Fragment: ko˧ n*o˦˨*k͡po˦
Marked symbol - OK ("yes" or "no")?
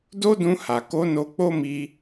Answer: no